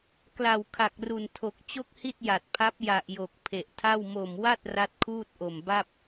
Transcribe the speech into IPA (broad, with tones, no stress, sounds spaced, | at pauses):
k l a˨˩ w kʰ a˨˩ k̚ r u˨˩ n tʰ o˨˩ k̚ t͡ɕ o˥˩ k̚ h i˥˩ t̚ j a˨˩ t̚ pʰ a˦˥ p̚ j a˨˩ ʔ j o˨˩ k̚ pʰ e˨˩ ʔ tʰ a˥˩ w m o˨˩ m w a˥˩ t̚ r a˦˥ t̚ kʰ uː˥˩ t̚ ʔ o˨˩ m b a˥˩ p̚